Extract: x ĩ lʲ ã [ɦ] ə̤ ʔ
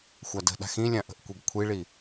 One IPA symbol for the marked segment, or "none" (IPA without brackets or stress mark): ʔ